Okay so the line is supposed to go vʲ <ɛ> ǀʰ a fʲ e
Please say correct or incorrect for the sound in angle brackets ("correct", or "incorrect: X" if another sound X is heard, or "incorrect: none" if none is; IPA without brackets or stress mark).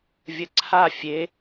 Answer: incorrect: ə